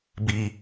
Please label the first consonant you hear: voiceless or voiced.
voiced